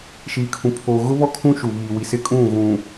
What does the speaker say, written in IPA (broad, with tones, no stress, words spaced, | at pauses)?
ʃiː˨kʰũ˨ pʰoː˨ɣʊ˦βɔ˦ kʰũ˦ʃu˨ βiː˨ wi˨sɪ˦kʼũ˦˨ ɣũ˨